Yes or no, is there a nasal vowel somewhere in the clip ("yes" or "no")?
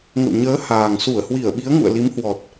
no